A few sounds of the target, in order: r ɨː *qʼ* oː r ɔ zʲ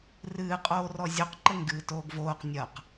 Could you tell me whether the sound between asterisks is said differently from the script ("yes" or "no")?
no